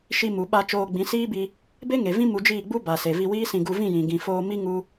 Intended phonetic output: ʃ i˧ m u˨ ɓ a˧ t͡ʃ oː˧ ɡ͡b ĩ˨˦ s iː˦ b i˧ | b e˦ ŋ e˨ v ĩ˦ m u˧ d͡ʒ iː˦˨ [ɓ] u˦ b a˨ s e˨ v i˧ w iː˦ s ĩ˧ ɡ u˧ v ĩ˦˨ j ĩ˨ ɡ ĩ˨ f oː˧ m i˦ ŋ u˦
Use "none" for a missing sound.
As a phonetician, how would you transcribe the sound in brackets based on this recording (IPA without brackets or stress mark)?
ɡ͡b